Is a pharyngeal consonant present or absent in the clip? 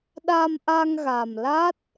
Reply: absent